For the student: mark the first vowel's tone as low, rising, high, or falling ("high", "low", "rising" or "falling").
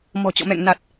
low